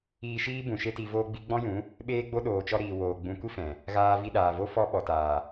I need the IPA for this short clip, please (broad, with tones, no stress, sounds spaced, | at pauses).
iː˧ ʃ iː˦ b ũ˨ ʃ e˦ t i˧ v oː˧ ɡ͡b i˧ ɡ͡b ɔ̃˦ j ũ˨˦ | ɓ eː˦ ɡ͡b o˦ ɗ oː˨ t͡ʃ ɔ˧ ɾ iː˨ w oː˨ ɡ͡b ũ˨ kʷ i˦ f ɛ̃˨ | ɣ aː˧ v i˧ ɗ aː˨ v o˦ f ɔ˧ ɓ ɔ˨ t aː˨